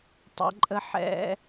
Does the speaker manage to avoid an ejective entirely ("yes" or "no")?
no